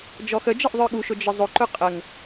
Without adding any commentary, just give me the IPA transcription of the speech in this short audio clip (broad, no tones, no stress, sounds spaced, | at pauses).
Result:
d͡ʒ ɔ x ə d͡ʒ ʌ ʔ ðˤ ə˞ ɠ u ʃ ʊ d͡ʒ ɪ zˤ ʊ ǃ ʊ qʼ ə ŋ